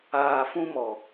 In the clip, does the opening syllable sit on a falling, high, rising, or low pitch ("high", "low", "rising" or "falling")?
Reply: low